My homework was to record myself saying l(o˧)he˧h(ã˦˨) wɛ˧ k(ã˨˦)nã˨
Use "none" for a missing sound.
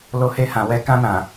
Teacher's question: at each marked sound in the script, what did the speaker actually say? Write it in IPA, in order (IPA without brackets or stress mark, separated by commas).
o˧, ã˨, ã˧